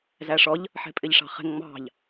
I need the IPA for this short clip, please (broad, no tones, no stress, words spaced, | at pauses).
zæʂɔʎ | ħɛ̤pʼɪʎʂɑ̤χɛ̤ŋ ŋ͡mɑ̤ʎ